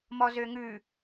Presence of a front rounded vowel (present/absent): present